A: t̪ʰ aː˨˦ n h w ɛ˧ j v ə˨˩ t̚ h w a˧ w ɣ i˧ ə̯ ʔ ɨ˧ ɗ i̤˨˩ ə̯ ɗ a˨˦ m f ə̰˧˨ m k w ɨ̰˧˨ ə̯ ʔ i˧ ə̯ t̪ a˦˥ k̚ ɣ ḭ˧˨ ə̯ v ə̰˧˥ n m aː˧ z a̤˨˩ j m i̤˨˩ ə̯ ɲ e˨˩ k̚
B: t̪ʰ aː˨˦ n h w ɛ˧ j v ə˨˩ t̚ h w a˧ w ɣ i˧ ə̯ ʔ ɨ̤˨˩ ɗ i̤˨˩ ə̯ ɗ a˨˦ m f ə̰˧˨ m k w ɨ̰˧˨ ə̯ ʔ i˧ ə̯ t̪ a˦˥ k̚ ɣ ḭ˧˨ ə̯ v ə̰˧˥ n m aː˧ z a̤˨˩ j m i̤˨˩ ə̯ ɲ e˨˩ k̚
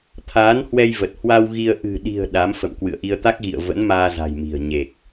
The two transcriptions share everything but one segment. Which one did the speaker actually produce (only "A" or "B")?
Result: B